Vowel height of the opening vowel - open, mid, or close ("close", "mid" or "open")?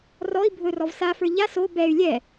mid